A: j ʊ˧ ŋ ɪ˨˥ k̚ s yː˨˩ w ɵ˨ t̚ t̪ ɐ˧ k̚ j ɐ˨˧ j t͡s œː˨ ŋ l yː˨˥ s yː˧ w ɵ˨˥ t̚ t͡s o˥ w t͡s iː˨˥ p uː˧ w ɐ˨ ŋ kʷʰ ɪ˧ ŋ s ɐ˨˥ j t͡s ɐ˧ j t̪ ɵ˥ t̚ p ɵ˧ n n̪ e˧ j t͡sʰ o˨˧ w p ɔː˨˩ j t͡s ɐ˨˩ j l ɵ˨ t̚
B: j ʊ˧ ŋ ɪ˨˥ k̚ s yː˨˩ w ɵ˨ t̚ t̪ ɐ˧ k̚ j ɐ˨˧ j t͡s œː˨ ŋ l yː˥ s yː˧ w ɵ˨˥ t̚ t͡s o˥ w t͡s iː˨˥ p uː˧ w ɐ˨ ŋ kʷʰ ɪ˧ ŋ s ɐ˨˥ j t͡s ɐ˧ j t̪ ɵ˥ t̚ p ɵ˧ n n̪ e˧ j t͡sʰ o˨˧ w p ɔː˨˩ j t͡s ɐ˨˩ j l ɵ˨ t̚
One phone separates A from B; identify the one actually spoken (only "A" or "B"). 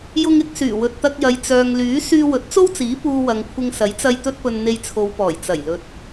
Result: A